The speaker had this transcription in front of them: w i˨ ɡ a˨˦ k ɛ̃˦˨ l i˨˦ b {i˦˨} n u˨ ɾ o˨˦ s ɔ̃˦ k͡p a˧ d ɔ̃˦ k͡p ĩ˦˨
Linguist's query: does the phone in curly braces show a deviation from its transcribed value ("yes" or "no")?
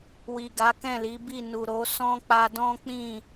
no